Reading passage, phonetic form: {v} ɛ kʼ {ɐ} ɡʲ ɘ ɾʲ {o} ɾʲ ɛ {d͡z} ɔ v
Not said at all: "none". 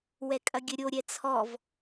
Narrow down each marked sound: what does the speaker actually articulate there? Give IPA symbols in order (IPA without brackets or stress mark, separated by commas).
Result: w, ɐ, o, t͡sʰ